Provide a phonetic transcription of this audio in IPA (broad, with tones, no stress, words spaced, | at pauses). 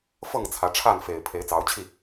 fɤ˥˨ŋt͡sʰä˨˦ʈ͡ʂʰa˥˨n fe˨˩ɪ̯ pʰe˨˦ɪ̯t͡sɑ˨˦ʊ̯t͡ɕʰi˥˨